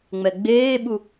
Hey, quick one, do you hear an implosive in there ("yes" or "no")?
yes